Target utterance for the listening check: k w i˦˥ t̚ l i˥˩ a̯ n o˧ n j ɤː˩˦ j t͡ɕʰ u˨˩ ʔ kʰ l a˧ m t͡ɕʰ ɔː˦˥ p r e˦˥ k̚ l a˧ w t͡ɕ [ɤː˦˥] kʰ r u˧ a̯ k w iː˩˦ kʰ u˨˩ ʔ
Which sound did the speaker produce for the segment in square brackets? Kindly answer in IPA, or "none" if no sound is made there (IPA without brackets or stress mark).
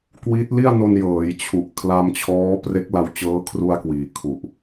ɤː˦˥